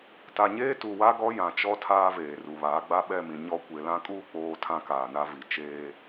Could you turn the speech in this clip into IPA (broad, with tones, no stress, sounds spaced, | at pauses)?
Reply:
t a˨ ɲ eː˦ t u˨ w a˦ ɡ ɔ˦ j ã˨ t͡ʃ ɔ˦ tʰ aː˦ v eː˨ r u˨ β aː˨˦ ɡ͡b a˦ ɓ ɛ˦˨ m ĩ˨ ɲ ɔ˦ kʷ e˨ l ã˦ kʼ uː˦ k͡p oː˨ tʰ ã˦ k aː˨ n a˦ v i˨ t͡ʃ eː˦